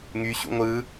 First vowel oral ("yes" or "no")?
yes